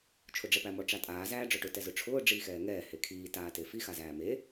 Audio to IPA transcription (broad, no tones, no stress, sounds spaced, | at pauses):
t͡ʃʰ ʊ ɖ͡ʐ ɛ p æ m ɔ ʈ͡ʂ a tʼ aː z æː ɖ͡ʐ ɔ ʈ ʊ t ɛ z ʊ ʈ͡ʂʰ ʊː ɖ͡ʐ iː x ɛː ŋ ɛː h e kʰ iː t aː t e f i x a z æː m e